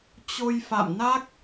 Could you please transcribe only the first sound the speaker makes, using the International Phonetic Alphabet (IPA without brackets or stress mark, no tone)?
t͡ɕ